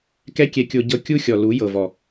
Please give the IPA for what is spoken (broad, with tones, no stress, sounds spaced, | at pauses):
k ɛ˦ kʲ ɛ˧ kʲ o˧ ɟ ɤ˧ kʲ u˦ xʲ ɔ˨ l u˨˦ j ɤ˨ v ɔ˨